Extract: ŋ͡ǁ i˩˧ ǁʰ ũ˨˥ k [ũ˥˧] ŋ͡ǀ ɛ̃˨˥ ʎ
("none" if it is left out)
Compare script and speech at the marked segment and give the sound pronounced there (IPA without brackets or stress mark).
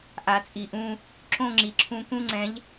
ũ˧˥˧